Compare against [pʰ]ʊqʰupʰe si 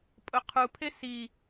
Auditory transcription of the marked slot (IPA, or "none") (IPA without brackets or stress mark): pʼ